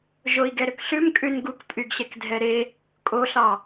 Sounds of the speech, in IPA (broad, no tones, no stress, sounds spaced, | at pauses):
ʒ o i̯ ɡ ɛ ɾ ø k ɬ ʉ m kʼ ʉ n ɡ u k pʼ y ɡ ɕ ɛ k dʱ ɛ ɾ e | kʼ o ɬ ɑ